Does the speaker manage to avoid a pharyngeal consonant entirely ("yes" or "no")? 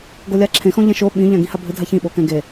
yes